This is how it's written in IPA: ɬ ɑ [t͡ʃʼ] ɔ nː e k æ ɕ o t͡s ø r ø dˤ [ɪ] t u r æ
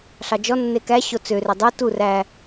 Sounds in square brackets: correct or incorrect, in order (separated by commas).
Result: incorrect, incorrect